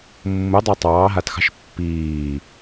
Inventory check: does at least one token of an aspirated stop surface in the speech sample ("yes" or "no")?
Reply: no